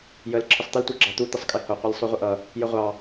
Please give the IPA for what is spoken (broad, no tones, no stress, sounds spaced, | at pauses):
j ə l ǁʰ ɪ sˤ t̪ ɪ l tʷ ə˞ ɡ͡ǁ ɑ t̪ u t̪ ɪ sˤ kʼ ɪ h ʊ qʷ ʌ lʲ sˤ u ʁʷ ə ʔ ʌ | j ə ʁʷ ɑ